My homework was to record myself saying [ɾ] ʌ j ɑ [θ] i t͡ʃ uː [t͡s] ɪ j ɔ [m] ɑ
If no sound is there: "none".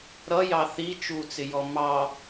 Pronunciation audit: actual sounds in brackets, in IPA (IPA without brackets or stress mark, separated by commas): ɾ, θ, t͡s, m